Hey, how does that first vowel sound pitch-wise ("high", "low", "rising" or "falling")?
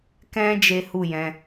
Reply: high